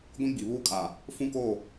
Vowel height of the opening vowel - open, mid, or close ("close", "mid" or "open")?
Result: close